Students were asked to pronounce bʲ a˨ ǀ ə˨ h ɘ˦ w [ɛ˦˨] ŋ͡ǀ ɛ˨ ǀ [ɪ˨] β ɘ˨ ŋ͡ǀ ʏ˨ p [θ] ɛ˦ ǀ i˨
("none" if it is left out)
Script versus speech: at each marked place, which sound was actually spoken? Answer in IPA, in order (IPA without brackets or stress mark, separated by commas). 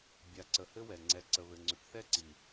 ɛ˨, ə˨, θ